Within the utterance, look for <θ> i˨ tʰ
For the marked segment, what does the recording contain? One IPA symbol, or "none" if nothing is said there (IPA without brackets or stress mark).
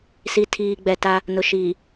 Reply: s